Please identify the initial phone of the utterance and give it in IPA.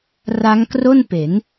r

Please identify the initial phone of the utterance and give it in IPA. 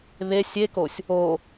β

